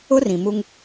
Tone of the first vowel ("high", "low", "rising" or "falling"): high